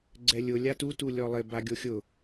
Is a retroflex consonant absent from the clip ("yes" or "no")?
yes